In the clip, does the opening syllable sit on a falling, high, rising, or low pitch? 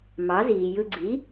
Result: rising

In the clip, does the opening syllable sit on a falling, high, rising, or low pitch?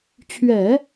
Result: low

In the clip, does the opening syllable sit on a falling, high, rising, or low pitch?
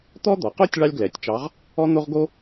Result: high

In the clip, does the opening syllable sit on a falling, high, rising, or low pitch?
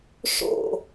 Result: falling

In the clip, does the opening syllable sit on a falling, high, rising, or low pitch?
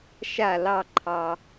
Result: falling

